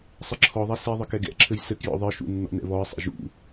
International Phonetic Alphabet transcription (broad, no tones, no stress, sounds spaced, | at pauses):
sˤ ɘ ǁʰ ɔ ðˤ ɛ s i ðˤ ɨ k ɛ ɡ ɛ̰ ǁʰ ɘ j s ɘ k j ɔ̰ ðˤ ɨ ʃ ṵ nː ɔ̰ n ɛ̰ β ɔ ə̯ sˤ ɛ̰ ʒ ṵ